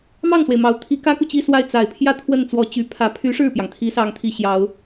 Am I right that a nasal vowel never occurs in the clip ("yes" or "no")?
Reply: yes